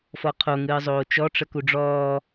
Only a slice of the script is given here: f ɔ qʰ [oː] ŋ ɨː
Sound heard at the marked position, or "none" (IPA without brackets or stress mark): o